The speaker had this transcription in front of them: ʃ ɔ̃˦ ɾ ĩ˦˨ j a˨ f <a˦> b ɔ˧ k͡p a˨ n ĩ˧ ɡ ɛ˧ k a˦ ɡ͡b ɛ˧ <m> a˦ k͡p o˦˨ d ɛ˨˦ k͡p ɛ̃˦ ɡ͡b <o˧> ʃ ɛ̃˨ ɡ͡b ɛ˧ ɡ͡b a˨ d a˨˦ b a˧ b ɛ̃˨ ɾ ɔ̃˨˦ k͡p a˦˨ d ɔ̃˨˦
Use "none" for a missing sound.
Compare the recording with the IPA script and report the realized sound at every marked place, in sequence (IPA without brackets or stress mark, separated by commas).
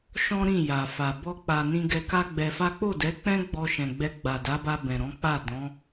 a˨, f, ɔ˧